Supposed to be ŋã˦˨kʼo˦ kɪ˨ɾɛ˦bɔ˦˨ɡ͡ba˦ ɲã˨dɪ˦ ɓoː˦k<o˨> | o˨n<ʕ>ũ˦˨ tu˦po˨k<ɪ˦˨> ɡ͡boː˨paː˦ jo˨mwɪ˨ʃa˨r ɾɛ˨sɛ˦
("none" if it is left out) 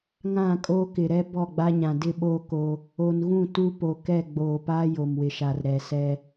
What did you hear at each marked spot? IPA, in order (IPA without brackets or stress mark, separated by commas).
o˦, ɣ, ɛ˦˨